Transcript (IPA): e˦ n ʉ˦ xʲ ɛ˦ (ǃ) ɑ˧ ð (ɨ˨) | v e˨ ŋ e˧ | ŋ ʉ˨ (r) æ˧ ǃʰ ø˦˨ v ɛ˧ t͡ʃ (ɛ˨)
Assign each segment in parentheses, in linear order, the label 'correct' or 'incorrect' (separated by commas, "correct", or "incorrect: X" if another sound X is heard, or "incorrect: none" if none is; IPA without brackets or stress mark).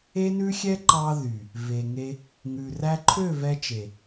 correct, incorrect: y˨, correct, incorrect: e˨